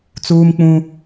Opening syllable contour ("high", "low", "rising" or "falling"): high